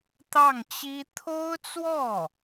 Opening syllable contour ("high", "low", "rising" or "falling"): falling